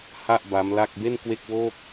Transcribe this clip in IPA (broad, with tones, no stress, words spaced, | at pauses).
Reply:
ha˥˩ʔ ba˦˥mla˥˩k̚ be˥˩nkwe˥˩k̚woː˥˩k̚